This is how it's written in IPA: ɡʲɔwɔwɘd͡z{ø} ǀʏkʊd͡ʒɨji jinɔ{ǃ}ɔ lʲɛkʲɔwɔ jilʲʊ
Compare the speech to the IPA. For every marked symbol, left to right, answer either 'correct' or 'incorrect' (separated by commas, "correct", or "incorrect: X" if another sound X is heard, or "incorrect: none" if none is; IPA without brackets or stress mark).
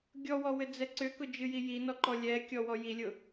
incorrect: ɛ, correct